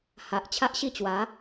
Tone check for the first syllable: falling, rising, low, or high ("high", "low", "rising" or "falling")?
low